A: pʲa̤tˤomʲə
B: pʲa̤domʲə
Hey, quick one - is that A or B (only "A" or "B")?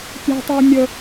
A